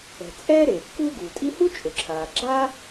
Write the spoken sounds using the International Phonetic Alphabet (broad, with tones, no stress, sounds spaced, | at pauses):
ɛ̤˩ t͡sʼ ɛː˥ ɾ eː˩ kː uː˥ ɡ uː˩ tʼ i˥ h u˥ t͡ʃʼ ʊ˩ ǁʰ aː˩ ɡ͡ǁ a˥